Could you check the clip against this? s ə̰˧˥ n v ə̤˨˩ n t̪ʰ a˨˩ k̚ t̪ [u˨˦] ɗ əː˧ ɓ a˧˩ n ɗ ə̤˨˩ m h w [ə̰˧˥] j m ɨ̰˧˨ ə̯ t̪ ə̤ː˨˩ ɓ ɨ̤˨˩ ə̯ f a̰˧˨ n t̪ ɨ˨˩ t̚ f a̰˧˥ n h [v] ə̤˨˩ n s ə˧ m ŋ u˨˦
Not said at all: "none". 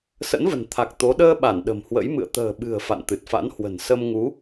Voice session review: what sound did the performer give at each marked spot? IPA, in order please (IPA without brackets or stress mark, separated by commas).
o˨˦, ə̰˧˥, w